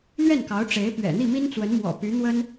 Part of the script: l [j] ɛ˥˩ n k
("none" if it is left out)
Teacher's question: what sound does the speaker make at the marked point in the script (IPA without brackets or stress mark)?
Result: ɥ